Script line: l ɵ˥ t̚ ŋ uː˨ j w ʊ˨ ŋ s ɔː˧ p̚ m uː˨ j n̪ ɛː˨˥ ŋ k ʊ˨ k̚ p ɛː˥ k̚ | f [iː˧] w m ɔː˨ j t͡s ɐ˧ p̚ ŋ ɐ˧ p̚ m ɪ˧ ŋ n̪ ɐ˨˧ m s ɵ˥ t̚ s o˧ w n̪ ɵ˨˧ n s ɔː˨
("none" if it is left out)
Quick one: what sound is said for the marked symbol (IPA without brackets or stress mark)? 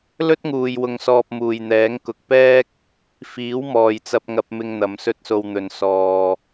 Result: iː˨˥